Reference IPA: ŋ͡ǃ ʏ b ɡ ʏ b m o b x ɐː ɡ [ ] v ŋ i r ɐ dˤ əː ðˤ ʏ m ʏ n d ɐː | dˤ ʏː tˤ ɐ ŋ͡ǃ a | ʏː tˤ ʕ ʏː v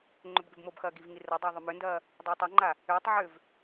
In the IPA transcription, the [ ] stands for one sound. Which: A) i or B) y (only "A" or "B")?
A